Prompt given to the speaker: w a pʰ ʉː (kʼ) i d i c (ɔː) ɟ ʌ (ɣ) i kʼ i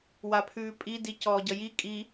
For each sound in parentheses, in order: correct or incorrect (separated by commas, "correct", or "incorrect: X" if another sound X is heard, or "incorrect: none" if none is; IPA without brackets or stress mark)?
incorrect: pʼ, correct, incorrect: j